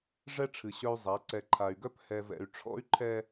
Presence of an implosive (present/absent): absent